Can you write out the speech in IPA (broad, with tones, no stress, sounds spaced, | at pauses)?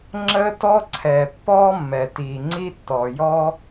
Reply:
ŋ͡ǁ ə˥ t ɔ˥ ǀʰ ɛ˩ pː ɔ˥ mː ɛ˩ t i˩ ŋ͡ǀ i˥ tː ɔ˩ j ɔ˥